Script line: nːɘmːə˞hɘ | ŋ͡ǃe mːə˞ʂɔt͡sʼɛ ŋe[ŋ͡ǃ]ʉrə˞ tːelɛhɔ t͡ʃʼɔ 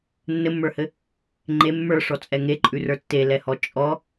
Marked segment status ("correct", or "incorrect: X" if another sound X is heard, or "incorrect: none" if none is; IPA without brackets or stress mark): incorrect: ǃʼ